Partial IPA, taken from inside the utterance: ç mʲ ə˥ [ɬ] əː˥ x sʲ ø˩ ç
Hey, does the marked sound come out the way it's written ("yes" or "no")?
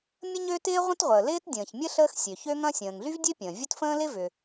yes